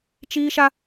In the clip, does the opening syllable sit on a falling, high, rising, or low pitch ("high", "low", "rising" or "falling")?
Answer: high